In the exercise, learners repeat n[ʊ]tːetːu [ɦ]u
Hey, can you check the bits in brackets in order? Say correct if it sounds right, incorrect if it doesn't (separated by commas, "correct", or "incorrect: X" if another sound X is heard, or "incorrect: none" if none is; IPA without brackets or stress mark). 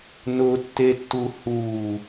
correct, incorrect: h